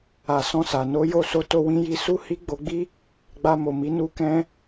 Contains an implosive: no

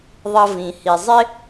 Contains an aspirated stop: no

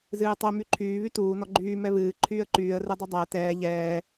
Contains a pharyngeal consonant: no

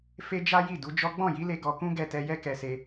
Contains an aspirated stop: no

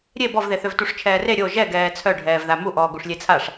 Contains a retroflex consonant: yes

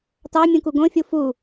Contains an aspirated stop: no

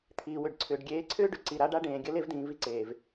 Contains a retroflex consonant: yes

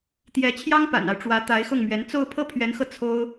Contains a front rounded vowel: no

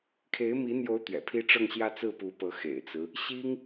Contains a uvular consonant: no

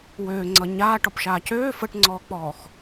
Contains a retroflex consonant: yes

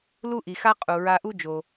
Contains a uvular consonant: yes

